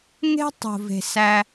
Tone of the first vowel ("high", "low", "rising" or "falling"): high